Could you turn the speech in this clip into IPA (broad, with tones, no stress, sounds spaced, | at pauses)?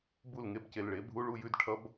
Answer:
b u˥˩ l ŋ e˥˧ b c e˨ l ɭ e˩˥ bʱ u˧˥˧ ɭ u˥˧ j ʉ˧˥˧ d ʈʰ ʌ˧˥˧ b